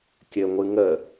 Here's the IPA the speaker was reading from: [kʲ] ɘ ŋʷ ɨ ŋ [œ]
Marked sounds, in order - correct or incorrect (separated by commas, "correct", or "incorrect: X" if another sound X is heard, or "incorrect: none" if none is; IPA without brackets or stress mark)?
correct, incorrect: ə